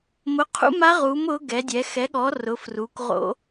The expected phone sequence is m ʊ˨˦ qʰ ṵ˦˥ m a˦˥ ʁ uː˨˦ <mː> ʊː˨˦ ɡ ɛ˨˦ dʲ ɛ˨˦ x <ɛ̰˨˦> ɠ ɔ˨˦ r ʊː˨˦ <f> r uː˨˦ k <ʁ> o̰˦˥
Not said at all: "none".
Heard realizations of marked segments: m, ɛ˨˦, f, ʁ

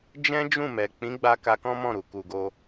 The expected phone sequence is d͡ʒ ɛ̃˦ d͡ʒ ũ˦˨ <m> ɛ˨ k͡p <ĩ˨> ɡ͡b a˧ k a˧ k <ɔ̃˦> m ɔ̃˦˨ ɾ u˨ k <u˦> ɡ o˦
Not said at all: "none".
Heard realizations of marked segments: m, ĩ˨˦, ɔ̃˦, u˧

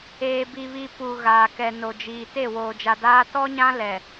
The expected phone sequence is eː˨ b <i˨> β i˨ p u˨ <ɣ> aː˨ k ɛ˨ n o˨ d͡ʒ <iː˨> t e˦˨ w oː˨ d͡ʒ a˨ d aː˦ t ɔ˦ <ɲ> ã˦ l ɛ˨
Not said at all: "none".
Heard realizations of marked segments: i˨, ɣ, iː˨, ɲ

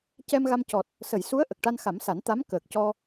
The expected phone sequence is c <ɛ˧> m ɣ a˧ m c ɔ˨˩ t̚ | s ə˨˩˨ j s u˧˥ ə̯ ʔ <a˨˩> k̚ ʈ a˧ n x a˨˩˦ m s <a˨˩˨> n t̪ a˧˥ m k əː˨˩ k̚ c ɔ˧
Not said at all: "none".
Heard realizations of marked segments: ɛ˧, ə˨˩, a˨˩˦

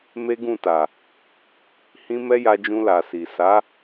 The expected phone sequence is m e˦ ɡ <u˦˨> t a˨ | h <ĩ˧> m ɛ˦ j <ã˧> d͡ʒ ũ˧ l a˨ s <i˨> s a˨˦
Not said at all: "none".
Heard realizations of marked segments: ũ˦˨, ĩ˦, a˧, i˨

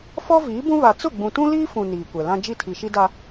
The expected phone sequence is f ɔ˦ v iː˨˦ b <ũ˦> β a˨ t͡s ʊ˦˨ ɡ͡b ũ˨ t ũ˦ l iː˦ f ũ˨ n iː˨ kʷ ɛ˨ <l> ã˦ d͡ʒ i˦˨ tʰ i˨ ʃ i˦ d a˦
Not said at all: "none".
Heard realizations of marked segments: ũ˦, l

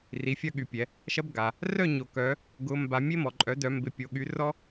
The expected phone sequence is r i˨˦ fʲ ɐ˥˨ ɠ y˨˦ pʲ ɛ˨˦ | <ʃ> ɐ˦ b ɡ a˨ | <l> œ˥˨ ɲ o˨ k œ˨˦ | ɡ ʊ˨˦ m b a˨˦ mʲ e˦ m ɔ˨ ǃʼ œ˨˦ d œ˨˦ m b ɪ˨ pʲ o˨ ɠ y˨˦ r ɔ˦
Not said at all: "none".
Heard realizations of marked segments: ʃ, r

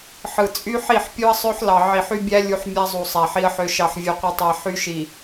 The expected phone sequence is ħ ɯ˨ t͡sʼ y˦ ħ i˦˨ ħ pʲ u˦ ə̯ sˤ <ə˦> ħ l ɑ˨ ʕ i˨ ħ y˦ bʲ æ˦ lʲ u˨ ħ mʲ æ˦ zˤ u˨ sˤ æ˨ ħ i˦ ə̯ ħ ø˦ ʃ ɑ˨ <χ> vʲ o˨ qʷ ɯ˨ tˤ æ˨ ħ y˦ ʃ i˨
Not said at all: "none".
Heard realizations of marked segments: ø˦, ħ

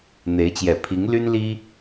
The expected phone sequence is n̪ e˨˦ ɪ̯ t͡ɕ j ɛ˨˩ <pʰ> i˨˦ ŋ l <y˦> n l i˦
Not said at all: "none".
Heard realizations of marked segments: pʰ, y˦

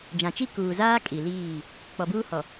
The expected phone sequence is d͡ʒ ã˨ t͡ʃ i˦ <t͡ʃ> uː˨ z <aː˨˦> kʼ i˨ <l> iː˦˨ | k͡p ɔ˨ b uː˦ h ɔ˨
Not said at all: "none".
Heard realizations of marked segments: k, aː˦, l

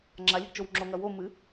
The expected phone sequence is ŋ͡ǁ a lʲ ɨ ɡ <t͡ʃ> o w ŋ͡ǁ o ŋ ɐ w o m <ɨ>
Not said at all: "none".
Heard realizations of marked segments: t͡ʃ, ɨ

